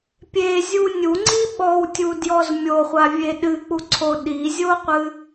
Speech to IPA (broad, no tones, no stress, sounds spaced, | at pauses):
pʲ e zʲ u nʲ u ŋ͡ǀ i ɓ ɔ w tʲ u d j ɔ z mʲ o χʷ a vʲ e ɗ ɨ k͡p u ǀʰ o ɗ i zʲ o qʷ ɨ